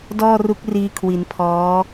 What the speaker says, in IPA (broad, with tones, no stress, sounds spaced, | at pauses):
d ɔː˥˩ r u˦˥ k̚ r iː˧ kʰ w i˩˦ n pʰ ɔː˦˥